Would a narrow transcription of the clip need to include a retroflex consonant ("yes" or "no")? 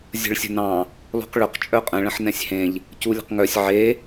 yes